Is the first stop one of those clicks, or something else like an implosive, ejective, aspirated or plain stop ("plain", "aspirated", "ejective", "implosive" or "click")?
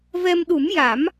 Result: implosive